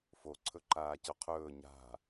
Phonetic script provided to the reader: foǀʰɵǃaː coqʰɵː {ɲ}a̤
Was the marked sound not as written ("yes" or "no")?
no